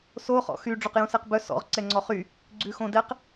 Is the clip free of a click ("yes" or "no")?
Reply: no